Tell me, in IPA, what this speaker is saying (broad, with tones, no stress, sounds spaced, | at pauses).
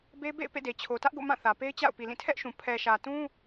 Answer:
b e˦ b ḛ˦˨ ɪ̯ p ḛ˦˨ d e˨ t͡ɕʰ o˨ t ä˦ ʔ ɡ o̰˦˨ m ã˦˨ θ ä˨ p e˦ ɪ̯ t͡ɕ a̰˦˨ ʊ̯ p i˨ l ĩ˦˨ tʰ ɛ˦ ʔ ʃ ũ˨ pʰ ɛ˨ ʃ ä˨ t ũ˦